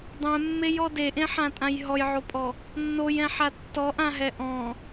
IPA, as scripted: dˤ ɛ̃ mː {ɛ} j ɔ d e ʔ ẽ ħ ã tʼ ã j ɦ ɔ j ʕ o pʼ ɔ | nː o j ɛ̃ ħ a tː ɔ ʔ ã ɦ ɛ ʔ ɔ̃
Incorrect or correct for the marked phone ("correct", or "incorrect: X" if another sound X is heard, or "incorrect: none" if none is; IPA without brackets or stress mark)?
incorrect: e